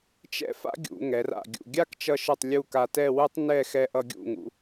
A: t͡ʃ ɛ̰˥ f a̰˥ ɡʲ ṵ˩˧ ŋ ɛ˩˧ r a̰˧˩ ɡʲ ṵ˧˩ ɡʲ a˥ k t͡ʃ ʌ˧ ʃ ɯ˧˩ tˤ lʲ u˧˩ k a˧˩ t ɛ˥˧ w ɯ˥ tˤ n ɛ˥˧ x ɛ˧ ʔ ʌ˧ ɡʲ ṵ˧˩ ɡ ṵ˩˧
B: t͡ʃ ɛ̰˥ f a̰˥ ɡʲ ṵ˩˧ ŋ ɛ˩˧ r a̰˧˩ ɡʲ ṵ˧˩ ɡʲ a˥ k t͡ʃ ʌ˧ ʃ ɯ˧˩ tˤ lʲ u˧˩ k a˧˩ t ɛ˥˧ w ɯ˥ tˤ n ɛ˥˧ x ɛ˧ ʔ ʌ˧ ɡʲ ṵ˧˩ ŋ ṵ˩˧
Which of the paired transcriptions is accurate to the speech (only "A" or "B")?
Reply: B